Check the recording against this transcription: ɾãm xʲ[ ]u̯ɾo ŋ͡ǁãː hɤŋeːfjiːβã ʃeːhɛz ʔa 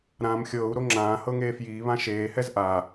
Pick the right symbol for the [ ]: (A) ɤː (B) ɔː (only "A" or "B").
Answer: A